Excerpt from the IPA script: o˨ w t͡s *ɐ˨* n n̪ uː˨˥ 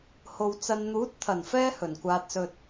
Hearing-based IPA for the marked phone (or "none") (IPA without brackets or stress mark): ɐ˨